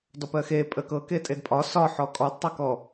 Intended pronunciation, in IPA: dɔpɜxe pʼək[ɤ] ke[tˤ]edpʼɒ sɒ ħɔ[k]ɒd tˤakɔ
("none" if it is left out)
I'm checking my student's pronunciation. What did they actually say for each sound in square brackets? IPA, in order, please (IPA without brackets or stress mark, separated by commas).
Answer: ɤ, tʼ, kʼ